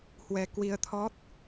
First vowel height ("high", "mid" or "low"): mid